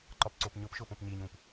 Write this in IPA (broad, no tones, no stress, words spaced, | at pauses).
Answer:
ǃɒpǀopɲʊpʃʊːp õpɲiɲũːp